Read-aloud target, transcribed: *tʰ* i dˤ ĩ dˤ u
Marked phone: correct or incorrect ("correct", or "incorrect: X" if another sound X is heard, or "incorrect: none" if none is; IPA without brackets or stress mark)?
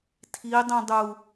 correct